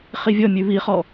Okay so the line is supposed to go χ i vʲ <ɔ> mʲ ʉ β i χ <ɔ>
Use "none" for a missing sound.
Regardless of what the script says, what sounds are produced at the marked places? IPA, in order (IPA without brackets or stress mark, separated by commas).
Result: ɔ, ɔ